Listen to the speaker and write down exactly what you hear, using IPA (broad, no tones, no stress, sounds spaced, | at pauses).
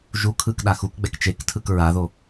ʒ u kʰ ɯ k ɗ a x u k ɡ͡b ɛ k t͡ʃ e k tʰ ɯ k ɹ a ð o